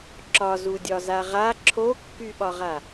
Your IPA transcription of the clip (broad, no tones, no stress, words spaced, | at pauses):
ǁɒzudʲɒza ʁa ǁʰokːyɓɒʁa